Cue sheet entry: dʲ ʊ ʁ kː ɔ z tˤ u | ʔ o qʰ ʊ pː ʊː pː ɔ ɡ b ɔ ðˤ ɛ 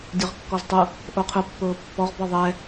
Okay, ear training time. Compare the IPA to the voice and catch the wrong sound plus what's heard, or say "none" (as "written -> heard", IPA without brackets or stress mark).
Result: ɡ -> ʁ